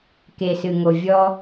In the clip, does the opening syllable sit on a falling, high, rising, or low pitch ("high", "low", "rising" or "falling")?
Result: low